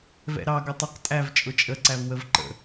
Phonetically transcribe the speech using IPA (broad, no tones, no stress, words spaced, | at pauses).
vɛ̰ɾɑ ɡʌtˤʌq tʼæv t͡ʃʼʊt͡ʃʼə ǀævwəvǃə̰